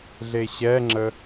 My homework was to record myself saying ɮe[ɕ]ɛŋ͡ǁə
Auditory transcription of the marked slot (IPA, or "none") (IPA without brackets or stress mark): ɕ